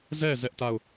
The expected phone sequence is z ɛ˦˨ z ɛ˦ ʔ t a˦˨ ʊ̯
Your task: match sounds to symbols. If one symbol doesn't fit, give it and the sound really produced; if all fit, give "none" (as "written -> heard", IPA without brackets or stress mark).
none